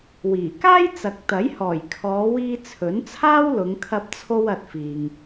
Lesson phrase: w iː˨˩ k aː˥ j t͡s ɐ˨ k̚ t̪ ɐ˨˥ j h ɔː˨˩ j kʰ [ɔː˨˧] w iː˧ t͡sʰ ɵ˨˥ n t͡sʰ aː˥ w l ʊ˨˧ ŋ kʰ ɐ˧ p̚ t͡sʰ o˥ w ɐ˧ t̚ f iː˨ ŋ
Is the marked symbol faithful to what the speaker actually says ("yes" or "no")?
yes